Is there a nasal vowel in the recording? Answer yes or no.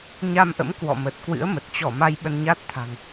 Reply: no